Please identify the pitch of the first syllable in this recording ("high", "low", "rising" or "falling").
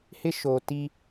high